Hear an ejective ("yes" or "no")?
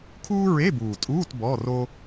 yes